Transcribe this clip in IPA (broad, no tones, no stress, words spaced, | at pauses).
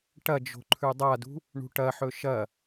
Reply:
ʈɐd͡ʒo̤ ǃʰʉdˤadṳ | ɳṳʈɐħɵ ʃɐ